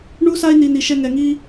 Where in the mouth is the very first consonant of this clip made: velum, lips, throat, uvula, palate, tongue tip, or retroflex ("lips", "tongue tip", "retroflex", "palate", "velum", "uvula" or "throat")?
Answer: retroflex